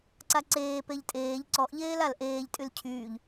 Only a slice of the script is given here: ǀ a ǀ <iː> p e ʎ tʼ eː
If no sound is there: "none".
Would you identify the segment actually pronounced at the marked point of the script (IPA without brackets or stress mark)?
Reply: eː